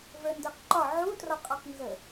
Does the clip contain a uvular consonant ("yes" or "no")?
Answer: yes